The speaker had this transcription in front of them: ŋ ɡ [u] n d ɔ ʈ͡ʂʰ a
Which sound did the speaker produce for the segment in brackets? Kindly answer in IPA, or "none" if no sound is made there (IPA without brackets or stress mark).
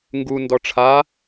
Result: u